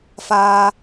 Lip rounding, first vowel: unrounded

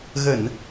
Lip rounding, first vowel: unrounded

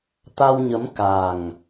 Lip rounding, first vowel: unrounded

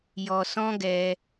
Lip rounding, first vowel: rounded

